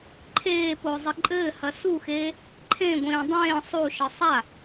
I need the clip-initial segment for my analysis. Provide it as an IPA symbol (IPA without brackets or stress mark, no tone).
ǃʰ